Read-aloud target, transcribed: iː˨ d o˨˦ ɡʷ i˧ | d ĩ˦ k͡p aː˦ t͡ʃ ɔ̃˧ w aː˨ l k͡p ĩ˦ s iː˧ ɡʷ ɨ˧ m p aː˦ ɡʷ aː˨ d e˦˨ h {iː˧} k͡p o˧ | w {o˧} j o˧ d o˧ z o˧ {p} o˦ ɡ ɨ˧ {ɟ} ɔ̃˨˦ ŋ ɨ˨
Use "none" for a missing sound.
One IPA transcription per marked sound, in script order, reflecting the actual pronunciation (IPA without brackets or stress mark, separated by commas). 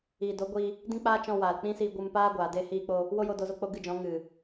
iː˧, o˦, k͡p, d͡ʒ